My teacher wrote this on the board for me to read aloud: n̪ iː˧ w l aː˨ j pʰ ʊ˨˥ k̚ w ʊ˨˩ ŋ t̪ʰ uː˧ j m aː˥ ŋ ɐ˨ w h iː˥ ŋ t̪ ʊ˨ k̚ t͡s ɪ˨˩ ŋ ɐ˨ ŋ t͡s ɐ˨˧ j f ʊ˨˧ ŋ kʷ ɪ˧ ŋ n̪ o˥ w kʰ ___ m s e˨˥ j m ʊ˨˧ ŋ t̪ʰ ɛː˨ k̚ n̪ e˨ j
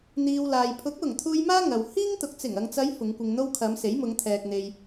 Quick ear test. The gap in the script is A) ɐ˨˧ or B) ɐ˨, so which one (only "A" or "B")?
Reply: A